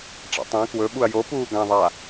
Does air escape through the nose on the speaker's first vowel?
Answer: no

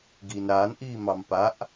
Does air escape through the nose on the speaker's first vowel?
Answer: no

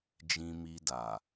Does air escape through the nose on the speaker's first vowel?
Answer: yes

